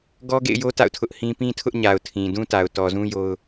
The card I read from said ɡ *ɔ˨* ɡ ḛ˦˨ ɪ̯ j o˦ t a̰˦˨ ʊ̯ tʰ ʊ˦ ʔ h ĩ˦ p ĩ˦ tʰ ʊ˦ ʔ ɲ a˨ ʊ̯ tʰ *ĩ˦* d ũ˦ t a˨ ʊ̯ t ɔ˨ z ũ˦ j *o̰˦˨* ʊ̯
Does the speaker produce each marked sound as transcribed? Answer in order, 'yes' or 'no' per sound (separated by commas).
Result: no, no, no